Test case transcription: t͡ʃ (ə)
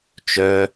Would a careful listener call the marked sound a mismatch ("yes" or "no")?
yes